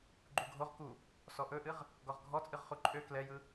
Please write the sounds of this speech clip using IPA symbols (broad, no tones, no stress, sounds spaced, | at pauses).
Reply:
ɡ͡ǃ u ɡʱ o ʁ k u | s ɔ ʔ ɵ ʔ ɨ ʁ | ɡ ɔ ʁ ɡʱ ɔ t͡sʼ ɨ ʁ χ u ǃʼ ø k l ɛ j ɯ